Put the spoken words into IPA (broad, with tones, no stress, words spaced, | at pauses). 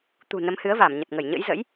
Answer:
t̪ṳ˨˩ nə˨˦mhɨ˨˦ə̯va˧˩m ɲə˨˩t̚ŋə˧˩jɲə̰˧˥j zə̰˧˥j